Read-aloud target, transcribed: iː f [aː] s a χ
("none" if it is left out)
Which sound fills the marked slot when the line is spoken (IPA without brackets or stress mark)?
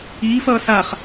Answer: ʌː